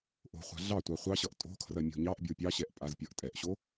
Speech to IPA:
ʔo̤χʷa̤ ɮɑtʷɑ χʷɑɕʌʔ tʼo̤kʰrɐ mʲo̤ɲɑʔbʲo pʲɑɕɛʔ pʼazpʲʌʔtʼɛʔɕo

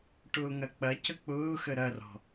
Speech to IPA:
ʈʊːŋɐk͡pɐ cək͡pʊːxə ɾɐrɔ̤

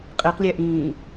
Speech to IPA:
qʼeqlʲæʔĩː

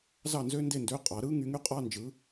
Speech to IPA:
zɑ˥˨nzø˥nde˥˨ndø˧˥˧ qʼɑ˨˥ ɾɯ˥ ŋy˨˥ŋy˥qʼɑ˧˥˧nd͡ʒɯ˨˥

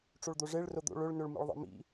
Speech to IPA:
ʈ͡ʂoɭd̪oʐeɭ rod̪o̰ ɭɵɭnɵɭ mḭɭðˤḛmḭ

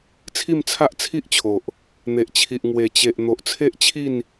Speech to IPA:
t͡sʰi˥˧mt͡sʰa˦ʔt͡sʰi˦ʔt͡ɕʰo˨ʔ | n̪e˨ʔt͡ɕʰi˨ʔ ŋwe˨˩t͡ɕe˨ʔ n̪o˨ʔt͡sʰe˦ʔt͡ɕʰi˥˧n

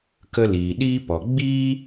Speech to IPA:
kə˧liː˨ ɗiː˦pɔ˨ ɡ͡biː˦

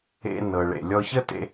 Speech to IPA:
ḛ˧nɤ˩ ɭḛ˩lʲɔ˧çə˥tḛ˧

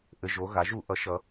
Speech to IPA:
ʔɘ˩˧˩ʒo˩˧ ɣa˩˧ʒu˧˩˧ʔʌ˩˥ ʃʌ˩˧

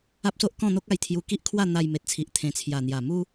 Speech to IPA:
a˦p̚so˦ʔ kɔ̃˥˧n̪o˦k̚a˧j t̪ʰju˧ ki˦ʔkʰwa˥˧ n̪a˧jme˨t̚t͡sʰi˨ʔ t̪ʰẽ˨˩t͡sʰja˨˩n̪ja˨˩ mu˦

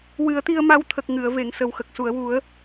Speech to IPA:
wɨ˨˩˦ə̯t̪i˧ə̯ma˧˥wt̪ʰə˨˩k̚ ŋɨ˨˩˨ə̯ve˨˩˨ŋ sə˨˩wxə˨˩k̚su˨˩˨ə̯wu˨˩˦ə̯

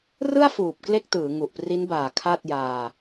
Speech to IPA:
rɯ˥˩a̯fuː˨˩p̚ kle˥˩k̚tɯː˩˦ ŋu˨˩ʔpri˦˥nbaː˨˩ kʰa˥˩t̚ jaː˧

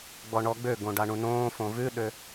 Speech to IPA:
ɡ͡bɔɳɔɡ͡bøɡõ ɖaɳũnõːfõ vʉɗø

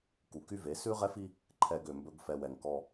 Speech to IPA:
ku˨ky˦ve˨˦ sʉ˦ʁɛ˦fi˦ | ǃʰɛ˨ɡ ø˨mbɵ˦ɡ fɛ˨wɛ˨ŋ kɔ˦

